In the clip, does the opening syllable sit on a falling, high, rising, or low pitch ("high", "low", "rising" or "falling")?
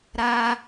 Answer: high